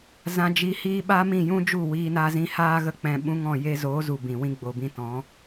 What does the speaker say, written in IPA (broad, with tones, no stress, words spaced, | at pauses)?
zã˧ d͡ʒi˧hiː˦ ɓaː˦mĩ˦˨jũ˦d͡ʒu˦˨ wiː˧na˧zĩ˧haː˦ ɣə˧ k͡pɛ̃˧ɓũ˦ŋɔ̃˦˨ je˧zoː˨˦zu˨ bĩ˨wĩ˦ ɡ͡bo˨bĩ˧tɔ̃˨˦